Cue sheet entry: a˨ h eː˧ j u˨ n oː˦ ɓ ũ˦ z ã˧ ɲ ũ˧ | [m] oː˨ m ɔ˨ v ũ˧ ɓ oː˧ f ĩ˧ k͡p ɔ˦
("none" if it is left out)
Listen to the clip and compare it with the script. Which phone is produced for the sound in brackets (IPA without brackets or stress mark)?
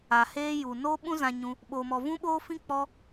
ɓ